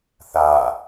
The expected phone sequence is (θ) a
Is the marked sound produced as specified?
yes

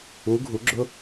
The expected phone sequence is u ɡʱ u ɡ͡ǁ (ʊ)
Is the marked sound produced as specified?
yes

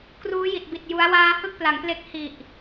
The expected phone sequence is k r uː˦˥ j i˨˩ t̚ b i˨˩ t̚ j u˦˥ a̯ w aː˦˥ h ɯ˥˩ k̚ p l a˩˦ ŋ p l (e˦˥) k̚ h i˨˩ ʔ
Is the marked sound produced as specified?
yes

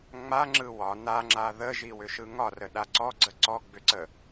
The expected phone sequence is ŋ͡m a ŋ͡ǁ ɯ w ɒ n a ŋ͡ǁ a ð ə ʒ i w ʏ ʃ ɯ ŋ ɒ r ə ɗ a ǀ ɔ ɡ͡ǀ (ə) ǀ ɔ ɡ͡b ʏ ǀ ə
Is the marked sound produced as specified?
yes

